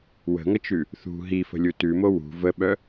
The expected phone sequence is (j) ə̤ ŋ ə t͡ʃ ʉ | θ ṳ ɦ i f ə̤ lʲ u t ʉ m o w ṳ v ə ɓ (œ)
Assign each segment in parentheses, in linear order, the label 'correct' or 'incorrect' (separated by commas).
incorrect, correct